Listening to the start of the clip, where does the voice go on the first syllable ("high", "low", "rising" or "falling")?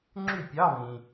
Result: falling